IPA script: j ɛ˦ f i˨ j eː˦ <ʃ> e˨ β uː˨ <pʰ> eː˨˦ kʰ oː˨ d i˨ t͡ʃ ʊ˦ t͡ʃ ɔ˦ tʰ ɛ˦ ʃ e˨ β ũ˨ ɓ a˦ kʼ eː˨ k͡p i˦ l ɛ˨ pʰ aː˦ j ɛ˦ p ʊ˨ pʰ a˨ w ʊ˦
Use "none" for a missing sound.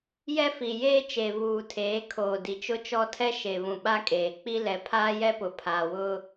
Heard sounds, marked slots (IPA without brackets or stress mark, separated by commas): t͡ʃ, tʰ